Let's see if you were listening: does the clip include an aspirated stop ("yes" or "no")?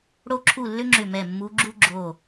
yes